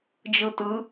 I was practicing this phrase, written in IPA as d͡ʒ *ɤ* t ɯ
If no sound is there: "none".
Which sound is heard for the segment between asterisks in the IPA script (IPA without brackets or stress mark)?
ɯ